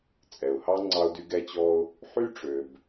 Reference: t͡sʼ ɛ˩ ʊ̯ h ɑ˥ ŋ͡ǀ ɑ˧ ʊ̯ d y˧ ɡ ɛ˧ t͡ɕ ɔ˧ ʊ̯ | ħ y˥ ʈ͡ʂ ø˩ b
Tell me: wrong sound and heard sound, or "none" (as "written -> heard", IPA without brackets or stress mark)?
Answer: none